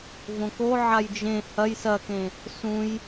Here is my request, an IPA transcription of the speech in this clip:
võko ʕajd͡ʒẽ hɐj sɐkẽ | sũj

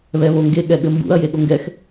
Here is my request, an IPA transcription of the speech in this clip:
βɛβoŋɡe ɠɛɠɘmbṵɐ̯ jeɠoŋɡɛx

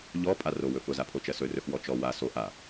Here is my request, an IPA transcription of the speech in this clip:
ʎɔ pʼaro wɵfʊ zapʰot͡ʃɜsɵ rɵxwɔt͡ʃɔ wa so ʔa

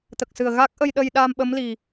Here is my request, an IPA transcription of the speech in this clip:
t̪ə˨˩k̚sɨ˨˩ə̯ɣa˦˥k̚ ʔə˧jɗə˧jɗaː˧m ɓə˧˥mli˨˩

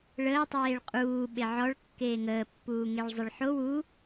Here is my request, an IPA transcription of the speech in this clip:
ɭəːtˤeːɭ qʼuː ɓeʕɔɭkːeː ŋəːpːuːŋeɭ zˤɘɭħo wu

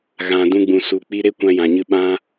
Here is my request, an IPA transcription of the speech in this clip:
ɣã˨ dũ˧ ɡ͡bũ˨ su˨k͡pi˧ ɾe˦kʷã˧jã˨ɲɨ˧ ɓã˦

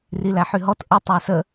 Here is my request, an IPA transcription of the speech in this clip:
rilæħyɦɔt ʔə tˤæsə

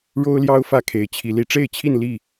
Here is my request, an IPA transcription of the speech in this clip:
ɻo˦ʊ̯ljɑ˦ʊ̯ fä˦kʰe˨˦ɪ̯t͡ɕʰi˨˦ li˨˦ʈ͡ʂe˥˨ɪ̯t͡ɕʰi˥˨n li˥˨

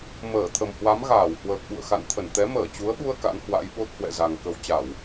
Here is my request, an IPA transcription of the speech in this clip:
məː˧˩t̪ʰə˨˩mhwa˨˦m ɣaː˧˩whwəː˨˩k̚ɓṵ˧˨ə̯ xa̰˧˨nt̪ʰə˧˩n t̪ɛ˨˦məː˧˩t͡ɕu˨˦ə̯ɓu˧ə̯ ka̰˧˥nhwa̰˧˥jɓo˦˥t̚ hwɛ̰˧˨za˨˩ŋ kə˧w t͡ɕa˧˩˨w

